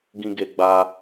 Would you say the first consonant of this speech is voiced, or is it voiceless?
voiced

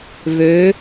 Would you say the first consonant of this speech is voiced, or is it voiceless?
voiced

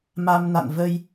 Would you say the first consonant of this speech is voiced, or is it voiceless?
voiced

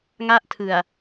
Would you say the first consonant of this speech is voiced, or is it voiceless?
voiced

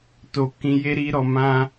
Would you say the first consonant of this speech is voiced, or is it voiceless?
voiceless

